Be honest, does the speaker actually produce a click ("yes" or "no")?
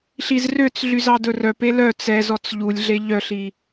no